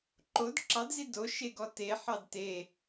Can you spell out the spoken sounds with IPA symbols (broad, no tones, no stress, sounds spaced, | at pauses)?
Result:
ǃ o d ǁ ɑ d z i d o ʃ e ɡ ɔ t e ħ ɑ d t e